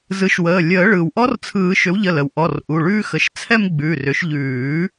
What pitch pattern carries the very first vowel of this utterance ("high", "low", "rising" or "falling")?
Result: rising